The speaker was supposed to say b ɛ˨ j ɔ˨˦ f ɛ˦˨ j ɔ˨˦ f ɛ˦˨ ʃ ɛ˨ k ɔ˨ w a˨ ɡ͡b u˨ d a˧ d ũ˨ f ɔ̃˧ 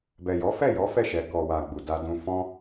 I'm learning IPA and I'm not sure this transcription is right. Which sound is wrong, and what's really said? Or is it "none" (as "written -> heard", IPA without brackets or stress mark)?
none